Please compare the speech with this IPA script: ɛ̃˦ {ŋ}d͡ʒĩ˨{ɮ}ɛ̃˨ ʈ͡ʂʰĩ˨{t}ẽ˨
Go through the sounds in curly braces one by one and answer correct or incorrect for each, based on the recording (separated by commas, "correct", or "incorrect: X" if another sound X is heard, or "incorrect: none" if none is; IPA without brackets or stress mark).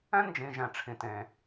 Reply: incorrect: n, incorrect: ʒ, correct